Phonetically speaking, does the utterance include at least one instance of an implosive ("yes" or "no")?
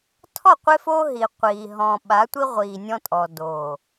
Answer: yes